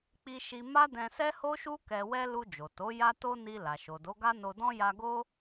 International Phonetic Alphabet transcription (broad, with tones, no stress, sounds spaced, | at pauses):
k͡p i˦ ʃ i˦ m a˦ d ɛ̃˧ s ɛ˦ h o˦ ʃ u˦ k ɛ˧ w ɛ˦ l u˧ d͡ʒ o˨ t o˨˦ j a˦ t o˦ n i˧ l a˨ ʃ o˨ d o˨˦ ɡ a˦ n o˧ d ɔ̃˦ j a˧ ɡ o˦